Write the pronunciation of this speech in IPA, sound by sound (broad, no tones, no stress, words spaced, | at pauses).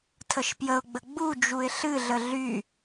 tʰəʃpjəʊ̯ɡ͡bə ɡ͡bud͡ʒuɪ̯ ɬɨɮə ɮy